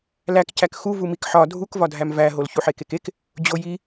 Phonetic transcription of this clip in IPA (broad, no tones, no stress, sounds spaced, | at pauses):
l æ k c æ k x u v u m i k ħ ɒ dʱ u k v ɒ dʱ æ m v æ ɦ o l ç u ħ e k e k e k | d͡ʑ o j i